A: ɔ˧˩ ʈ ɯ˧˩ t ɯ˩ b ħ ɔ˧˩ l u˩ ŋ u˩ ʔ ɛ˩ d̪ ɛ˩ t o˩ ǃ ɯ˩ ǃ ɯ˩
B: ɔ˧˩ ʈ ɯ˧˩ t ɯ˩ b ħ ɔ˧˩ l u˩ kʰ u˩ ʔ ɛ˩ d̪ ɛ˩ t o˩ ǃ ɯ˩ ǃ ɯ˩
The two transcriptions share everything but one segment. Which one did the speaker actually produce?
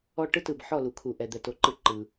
B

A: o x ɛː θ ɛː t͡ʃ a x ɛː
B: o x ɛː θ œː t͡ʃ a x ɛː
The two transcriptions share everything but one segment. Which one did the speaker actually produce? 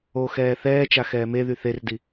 A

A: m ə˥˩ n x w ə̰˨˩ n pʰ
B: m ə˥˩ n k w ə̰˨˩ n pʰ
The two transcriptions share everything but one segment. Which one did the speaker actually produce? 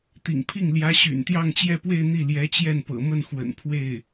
A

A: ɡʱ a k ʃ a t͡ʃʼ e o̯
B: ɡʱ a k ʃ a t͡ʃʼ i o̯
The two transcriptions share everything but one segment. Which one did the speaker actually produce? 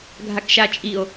B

